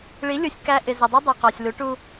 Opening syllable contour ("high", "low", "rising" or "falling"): rising